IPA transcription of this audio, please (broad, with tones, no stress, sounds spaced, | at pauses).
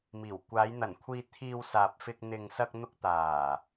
m iː˨˩ w kʷ aː˨˧ j n̪ ɐ˨˩ n kʷʰ iː˧ t̪ʰ iː˧ w s aː˨ p̚ f ɪ˧ k̚ n̪ ɪ˨ ŋ s ɐ˧ k̚ n̪ ʊ˧ k̚ t̪ aː˨˩